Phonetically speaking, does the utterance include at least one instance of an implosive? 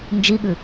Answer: yes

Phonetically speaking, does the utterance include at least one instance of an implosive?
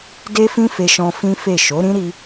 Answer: no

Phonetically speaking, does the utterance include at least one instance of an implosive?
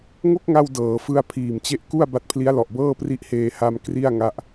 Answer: no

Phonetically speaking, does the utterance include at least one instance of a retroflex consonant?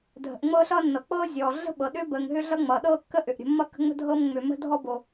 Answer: no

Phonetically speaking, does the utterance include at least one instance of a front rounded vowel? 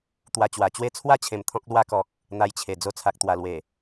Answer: no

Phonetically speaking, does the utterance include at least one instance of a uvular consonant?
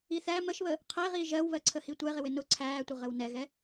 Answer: yes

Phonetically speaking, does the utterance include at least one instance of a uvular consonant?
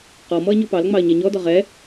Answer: yes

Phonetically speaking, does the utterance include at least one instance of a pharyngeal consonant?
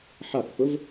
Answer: yes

